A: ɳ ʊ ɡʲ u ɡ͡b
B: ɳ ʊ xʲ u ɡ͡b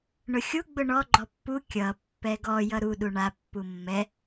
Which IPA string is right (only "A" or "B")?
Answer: B